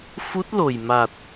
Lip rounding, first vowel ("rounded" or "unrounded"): rounded